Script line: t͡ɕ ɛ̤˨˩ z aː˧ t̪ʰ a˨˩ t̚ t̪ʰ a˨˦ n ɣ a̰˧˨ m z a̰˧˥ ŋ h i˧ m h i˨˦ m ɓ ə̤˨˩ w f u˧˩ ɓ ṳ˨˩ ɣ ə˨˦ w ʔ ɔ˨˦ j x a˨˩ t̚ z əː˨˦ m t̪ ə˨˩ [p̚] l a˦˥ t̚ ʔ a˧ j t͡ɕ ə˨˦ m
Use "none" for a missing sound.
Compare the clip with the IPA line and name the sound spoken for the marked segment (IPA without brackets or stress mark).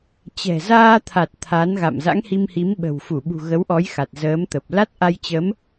p̚